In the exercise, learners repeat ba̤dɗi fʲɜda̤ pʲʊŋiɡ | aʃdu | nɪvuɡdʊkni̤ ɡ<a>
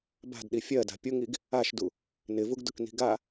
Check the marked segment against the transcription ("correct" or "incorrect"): correct